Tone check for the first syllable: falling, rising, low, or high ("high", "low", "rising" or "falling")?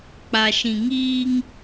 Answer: low